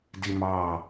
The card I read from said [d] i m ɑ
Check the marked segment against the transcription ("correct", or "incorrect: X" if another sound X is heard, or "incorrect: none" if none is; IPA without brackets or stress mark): correct